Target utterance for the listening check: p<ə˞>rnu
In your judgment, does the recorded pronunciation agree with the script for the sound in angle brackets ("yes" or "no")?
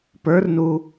yes